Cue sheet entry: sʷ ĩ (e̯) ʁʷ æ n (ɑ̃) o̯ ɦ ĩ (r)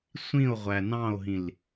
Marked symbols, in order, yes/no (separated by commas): no, yes, no